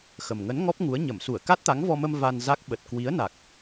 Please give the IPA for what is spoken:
x ə˨˩ m ŋ ə˨˦ n ŋ ɔ˦˥ p̚ ŋ u˨˦ ə̯ ɲ ə˧˩ m s u˧˩ ə̯ k a˦˥ t̚ t̪ a˨˦ ŋ v ɔ˧ m ə˧ m v a˧ n z a˦˥ k̚ ɓ ə˨˩ t̚ k w i˨˦ ə̯ n a˨˩ k̚

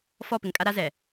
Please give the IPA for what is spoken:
f ɔ˦˨ p ɪ˨ ŋ kʼ a˦ ɾ a˦ z ɛ˨

